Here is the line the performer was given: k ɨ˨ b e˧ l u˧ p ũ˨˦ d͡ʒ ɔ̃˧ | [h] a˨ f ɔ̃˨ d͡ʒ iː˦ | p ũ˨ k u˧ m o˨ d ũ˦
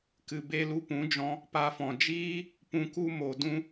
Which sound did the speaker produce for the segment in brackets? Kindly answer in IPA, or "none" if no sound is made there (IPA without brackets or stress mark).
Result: p